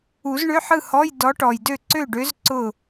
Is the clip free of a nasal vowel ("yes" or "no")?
yes